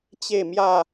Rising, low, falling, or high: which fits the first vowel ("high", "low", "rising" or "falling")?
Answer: falling